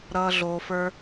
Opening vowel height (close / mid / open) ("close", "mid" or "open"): mid